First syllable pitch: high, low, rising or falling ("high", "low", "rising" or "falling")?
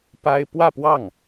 high